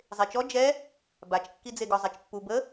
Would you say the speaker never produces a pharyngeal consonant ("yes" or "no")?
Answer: yes